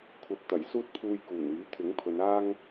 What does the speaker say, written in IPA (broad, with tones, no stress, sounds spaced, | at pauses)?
kʷʰ ɐ˨ p̚ t̪ ɐ˨˩ j s uː˥ t̚ pʰ uː˧ j k uː˨˩ n yː˨˥ t̪ʰ ɪ˨˥ ŋ pʰ ɵ˨˧ n aː˥ ŋ